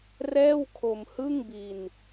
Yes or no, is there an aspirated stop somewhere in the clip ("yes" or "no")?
yes